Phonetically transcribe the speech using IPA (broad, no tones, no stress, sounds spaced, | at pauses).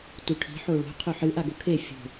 t u ʈʰ i̤ ħ o ɭ o̤ qʰ ɵ ħ ɨ ʔ a ɡ o kʰ e fʲ o̤